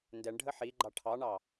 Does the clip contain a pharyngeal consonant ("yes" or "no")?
yes